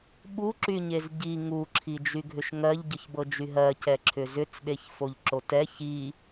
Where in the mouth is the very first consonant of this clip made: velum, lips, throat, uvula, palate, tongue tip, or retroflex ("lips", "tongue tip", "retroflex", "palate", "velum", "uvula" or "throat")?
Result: lips